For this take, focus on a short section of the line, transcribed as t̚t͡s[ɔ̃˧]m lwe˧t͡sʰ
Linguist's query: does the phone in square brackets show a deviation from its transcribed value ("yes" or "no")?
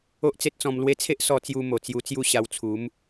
no